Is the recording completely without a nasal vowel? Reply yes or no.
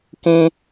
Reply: no